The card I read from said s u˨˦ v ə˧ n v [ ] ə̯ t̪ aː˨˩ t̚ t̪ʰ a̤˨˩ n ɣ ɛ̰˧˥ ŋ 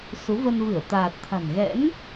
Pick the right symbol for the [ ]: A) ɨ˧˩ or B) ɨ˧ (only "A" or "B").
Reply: A